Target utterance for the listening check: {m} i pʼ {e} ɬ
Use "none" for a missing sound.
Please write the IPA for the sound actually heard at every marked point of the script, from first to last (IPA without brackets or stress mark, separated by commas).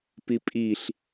p, i